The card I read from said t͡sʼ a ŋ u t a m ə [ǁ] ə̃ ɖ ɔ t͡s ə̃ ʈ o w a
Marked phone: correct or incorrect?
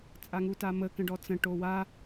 incorrect